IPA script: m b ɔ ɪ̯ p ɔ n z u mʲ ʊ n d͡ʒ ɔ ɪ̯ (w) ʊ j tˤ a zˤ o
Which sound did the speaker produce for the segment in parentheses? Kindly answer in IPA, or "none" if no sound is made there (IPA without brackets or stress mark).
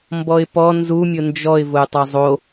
v